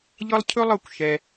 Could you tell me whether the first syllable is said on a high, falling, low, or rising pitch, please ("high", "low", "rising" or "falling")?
high